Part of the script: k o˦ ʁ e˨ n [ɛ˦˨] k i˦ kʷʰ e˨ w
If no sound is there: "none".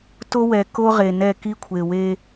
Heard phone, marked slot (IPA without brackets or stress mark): ɛ˦˨